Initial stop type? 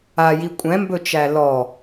ejective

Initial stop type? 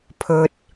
aspirated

